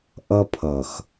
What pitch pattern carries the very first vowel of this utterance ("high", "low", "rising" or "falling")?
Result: high